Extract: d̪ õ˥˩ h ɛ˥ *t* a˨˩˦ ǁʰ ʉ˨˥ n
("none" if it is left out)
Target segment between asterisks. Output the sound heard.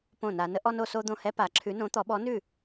p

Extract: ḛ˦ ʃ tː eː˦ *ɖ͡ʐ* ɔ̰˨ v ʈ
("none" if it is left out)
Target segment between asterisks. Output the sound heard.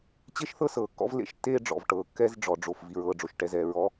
ɖ͡ʐ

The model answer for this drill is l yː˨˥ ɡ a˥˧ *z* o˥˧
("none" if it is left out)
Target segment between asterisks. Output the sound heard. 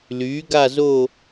z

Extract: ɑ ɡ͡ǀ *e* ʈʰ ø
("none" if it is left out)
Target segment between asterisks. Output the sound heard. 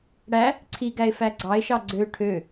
ø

